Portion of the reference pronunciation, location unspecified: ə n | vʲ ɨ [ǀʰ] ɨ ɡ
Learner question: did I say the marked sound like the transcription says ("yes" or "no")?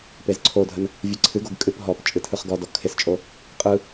yes